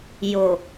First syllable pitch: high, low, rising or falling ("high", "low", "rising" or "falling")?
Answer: low